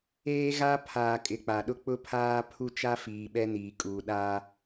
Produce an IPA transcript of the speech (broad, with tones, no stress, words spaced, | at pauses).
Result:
eː˦ɣa˦ pʰaː˨kʼɪ˨ k͡pa˨ɗʊ˦ k͡pʊ˦pʰaː˦ pʰu˦t͡ʃa˦fiː˨ ɓɛ˦niː˨kʼuː˨ ɗaː˦